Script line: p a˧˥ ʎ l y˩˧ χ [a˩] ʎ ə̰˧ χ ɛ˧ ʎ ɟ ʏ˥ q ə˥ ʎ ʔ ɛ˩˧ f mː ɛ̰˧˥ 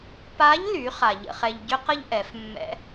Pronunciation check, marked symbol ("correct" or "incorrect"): correct